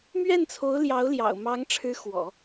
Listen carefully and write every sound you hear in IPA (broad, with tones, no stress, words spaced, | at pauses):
mɥɛ˥˩nt͡sʰo˧˥ʊ̯ ljɑ˧˥ʊ̯ljɑ̰˨˩ʊ̯mɑ˧˥ŋ ʈ͡ʂʰɻ̩˧˥xwɔ̰˨˩˦